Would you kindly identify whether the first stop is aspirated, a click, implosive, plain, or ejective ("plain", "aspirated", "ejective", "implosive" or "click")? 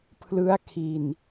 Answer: aspirated